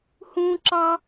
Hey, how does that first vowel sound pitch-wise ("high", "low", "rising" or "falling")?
high